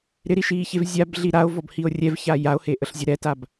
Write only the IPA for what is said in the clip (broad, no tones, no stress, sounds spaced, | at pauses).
ɾ ɪ ɾ i ʃ iː ç e v zʲ a b ɮ i ɾ a o̯ v ɔ b h i o̯ rʲ ɛ v ç a j a o̯ h e ʔ ə ɬ zʲ ə ɾ ɛ t a b